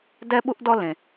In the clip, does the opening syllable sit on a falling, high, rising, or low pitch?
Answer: high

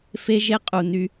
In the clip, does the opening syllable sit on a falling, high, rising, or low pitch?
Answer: high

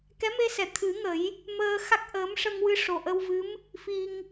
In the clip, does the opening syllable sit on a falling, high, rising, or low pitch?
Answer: rising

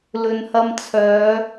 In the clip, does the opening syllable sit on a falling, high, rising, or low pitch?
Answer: low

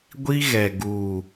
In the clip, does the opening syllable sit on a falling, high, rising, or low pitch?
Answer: high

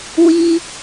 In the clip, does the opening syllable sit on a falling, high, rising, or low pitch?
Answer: high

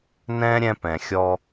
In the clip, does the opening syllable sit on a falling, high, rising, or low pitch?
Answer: high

